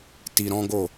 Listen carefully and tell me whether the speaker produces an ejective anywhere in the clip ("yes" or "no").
no